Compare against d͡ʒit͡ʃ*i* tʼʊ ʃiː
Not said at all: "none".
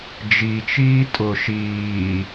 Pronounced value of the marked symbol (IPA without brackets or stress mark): iː